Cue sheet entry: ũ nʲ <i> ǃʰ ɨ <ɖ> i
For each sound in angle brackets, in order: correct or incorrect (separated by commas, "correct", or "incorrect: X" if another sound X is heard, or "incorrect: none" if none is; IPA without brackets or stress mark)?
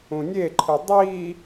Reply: incorrect: e, incorrect: dˤ